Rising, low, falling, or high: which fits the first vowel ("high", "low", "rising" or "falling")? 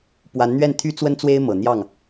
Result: rising